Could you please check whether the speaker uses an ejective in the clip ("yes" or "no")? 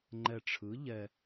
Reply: no